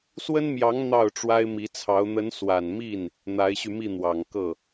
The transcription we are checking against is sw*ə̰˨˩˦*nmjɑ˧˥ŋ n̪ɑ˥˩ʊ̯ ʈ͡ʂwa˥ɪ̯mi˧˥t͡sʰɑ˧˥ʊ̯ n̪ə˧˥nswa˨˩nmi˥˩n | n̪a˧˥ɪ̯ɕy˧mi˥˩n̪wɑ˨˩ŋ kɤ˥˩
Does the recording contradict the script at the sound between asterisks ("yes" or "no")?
yes